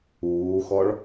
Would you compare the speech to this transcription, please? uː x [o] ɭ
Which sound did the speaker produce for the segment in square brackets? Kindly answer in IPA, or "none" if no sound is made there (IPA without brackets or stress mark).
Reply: ɔ